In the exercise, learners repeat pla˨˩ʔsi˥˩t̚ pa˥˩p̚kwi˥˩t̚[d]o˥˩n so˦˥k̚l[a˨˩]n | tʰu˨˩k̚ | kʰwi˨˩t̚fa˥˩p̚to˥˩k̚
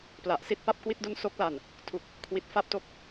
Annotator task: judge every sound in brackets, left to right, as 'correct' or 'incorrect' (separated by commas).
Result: correct, correct